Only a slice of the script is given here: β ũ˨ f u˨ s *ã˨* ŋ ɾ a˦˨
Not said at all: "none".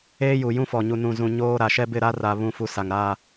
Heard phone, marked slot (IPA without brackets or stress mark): a˨